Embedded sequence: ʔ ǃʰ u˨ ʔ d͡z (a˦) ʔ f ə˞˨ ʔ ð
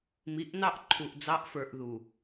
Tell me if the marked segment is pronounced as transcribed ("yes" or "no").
no